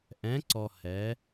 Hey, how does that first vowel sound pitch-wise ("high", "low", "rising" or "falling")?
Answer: rising